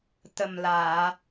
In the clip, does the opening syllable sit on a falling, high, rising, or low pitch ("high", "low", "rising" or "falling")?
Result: low